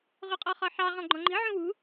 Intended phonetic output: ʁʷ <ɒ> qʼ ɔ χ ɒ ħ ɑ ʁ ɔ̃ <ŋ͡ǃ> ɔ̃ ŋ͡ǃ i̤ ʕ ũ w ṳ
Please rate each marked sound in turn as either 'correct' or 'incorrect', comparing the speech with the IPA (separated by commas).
incorrect, incorrect